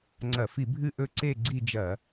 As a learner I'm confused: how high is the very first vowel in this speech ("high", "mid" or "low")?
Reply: low